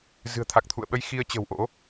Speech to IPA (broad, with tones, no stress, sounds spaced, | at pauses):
z ɨ̤˨˩ ə̯ t̪ʰ a˨˩ k̚ t̪ʰ ṵ˧˨ ə̯ ɓ ə˧ j x i˧ ə̯ t͡ɕ ə̤˨˩ w ʔ o̰˧˥